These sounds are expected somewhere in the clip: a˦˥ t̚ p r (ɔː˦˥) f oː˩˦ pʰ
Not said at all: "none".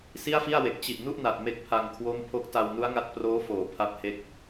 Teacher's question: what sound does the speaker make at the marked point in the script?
oː˦˥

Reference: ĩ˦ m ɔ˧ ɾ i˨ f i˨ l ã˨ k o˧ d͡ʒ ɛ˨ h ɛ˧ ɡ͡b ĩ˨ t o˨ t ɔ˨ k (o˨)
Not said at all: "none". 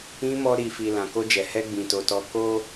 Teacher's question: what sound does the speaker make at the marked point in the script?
o˧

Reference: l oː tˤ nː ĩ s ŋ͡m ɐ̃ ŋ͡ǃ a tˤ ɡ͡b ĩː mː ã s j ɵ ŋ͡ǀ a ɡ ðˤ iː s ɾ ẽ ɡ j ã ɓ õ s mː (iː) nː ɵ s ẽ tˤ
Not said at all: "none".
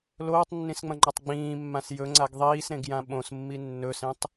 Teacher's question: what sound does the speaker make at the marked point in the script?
i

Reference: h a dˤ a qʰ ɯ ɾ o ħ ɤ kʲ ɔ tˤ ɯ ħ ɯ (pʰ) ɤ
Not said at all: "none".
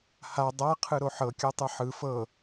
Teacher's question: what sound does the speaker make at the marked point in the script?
f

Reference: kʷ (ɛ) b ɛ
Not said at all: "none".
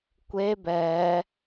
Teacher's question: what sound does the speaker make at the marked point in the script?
e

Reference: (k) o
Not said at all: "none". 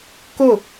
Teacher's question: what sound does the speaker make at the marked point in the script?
k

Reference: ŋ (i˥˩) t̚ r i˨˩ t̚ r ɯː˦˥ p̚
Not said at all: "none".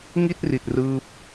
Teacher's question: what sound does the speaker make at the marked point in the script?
i˥˩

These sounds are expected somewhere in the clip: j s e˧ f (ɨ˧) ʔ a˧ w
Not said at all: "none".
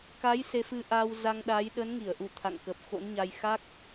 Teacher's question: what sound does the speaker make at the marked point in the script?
ɨ˧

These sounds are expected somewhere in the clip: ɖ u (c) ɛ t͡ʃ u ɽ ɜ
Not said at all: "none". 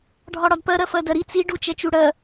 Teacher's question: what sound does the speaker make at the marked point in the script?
t͡ʃ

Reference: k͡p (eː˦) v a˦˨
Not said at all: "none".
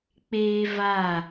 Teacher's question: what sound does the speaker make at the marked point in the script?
eː˦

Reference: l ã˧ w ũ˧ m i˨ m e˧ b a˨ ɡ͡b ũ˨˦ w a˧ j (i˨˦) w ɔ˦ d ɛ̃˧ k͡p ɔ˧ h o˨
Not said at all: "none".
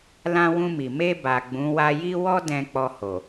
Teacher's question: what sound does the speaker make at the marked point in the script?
i˦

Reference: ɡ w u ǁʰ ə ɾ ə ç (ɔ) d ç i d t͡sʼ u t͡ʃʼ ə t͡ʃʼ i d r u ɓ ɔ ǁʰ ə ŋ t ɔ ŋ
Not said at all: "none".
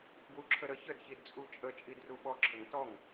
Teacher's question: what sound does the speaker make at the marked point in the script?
ə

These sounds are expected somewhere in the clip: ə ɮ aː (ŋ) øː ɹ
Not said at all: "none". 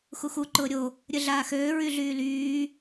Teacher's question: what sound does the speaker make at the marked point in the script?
x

